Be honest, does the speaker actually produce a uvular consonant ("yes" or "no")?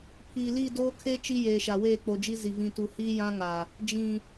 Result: no